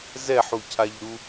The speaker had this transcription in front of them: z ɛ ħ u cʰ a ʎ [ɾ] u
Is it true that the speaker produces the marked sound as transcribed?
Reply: yes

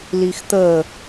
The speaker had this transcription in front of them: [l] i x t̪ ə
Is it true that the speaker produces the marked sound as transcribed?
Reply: yes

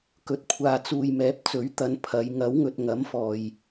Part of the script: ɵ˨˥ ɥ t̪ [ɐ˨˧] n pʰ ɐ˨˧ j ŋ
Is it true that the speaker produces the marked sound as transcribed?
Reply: yes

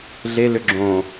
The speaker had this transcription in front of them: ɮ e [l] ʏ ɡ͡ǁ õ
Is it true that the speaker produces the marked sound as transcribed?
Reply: yes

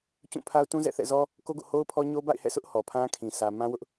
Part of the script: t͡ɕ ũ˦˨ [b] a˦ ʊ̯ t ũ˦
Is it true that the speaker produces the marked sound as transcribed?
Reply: no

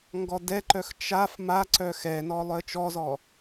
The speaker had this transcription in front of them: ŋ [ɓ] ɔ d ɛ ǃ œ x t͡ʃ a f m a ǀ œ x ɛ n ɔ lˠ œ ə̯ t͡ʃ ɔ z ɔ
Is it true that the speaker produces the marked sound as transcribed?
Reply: no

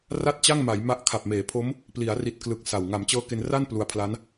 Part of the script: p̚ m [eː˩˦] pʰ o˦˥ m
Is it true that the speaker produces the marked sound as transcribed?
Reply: yes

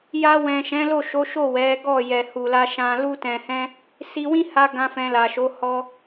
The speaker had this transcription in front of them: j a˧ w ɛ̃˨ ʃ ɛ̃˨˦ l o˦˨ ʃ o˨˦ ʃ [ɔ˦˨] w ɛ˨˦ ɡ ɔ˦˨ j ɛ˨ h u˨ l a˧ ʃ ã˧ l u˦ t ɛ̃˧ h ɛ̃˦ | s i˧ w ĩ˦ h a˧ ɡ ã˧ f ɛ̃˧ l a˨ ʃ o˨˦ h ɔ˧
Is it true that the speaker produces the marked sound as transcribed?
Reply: no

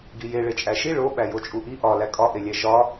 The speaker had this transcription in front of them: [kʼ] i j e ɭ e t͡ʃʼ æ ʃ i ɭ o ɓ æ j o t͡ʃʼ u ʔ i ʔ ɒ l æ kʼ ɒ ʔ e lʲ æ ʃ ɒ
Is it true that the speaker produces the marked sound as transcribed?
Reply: no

